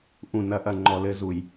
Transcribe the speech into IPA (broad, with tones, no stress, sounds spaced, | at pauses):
ʔ ũ˨ n ɐ˨˦ ʔ ɐ˨ ŋ͡ǃ ɔ˨ l ɘ˦ z u˨ j